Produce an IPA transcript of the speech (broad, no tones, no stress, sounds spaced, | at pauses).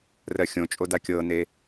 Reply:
r ɜ xʲ õ t͡ʃʼ o d a kʲ ɤ n e